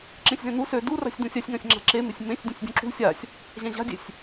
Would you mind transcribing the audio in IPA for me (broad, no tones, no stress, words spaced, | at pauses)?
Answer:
ǁẽsʲzẽn̪u sø dura̤sʲd̪ũsʲ asʲŋãsʲŋ͡ǁa̤ ǁemesʲ mẽsʲ dʲũsʲdʲũǁṳ sʲasʲ | ʑãʑa̤dʲesʲ